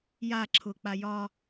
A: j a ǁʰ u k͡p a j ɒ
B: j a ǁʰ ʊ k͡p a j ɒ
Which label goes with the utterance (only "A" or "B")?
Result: B